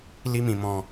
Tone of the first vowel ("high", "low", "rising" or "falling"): high